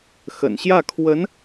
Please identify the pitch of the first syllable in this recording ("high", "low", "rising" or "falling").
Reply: low